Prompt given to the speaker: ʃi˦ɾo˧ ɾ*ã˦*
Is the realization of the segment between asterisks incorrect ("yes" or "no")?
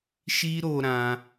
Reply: no